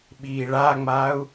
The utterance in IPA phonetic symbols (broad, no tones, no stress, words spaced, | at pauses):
ɓiːɭaŋ͡maːu̯